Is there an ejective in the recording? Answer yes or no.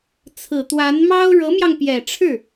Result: no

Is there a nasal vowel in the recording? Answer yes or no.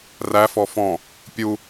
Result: yes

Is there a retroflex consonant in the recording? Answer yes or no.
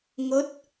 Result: no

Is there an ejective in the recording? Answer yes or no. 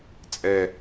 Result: yes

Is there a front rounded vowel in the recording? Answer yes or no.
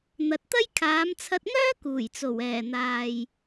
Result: yes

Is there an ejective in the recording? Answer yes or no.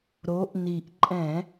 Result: yes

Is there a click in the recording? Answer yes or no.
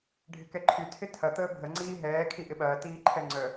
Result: yes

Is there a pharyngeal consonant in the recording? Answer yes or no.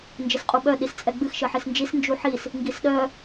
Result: yes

